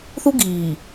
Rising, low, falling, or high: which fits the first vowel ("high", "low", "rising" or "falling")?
high